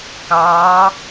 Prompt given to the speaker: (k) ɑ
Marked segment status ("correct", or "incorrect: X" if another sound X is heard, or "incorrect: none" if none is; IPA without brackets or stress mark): correct